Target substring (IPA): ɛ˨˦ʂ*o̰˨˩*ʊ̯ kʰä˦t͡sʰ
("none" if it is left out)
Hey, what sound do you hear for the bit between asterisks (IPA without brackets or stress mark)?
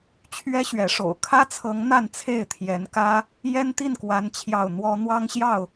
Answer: o̰˨˩